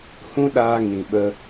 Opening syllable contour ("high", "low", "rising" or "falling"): high